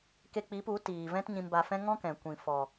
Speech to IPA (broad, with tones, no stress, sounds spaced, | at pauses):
k e˧ k͡p i˨˦ p u˨˦ t iː˨ v ɛ̃˦ t ɲ ĩ˧ m b a˧ f ɛ̃˦ ŋ ɔ̃˦ k ɛ̃˨ kʷ ĩ˨ f ɔ˨